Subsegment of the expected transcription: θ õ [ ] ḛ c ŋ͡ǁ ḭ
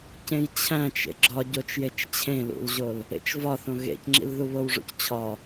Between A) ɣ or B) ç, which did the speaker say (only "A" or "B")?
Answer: A